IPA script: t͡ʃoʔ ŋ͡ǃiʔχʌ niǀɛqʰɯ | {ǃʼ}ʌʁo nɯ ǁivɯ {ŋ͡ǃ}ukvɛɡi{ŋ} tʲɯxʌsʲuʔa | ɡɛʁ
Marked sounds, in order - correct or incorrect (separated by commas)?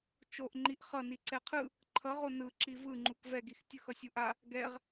incorrect, correct, incorrect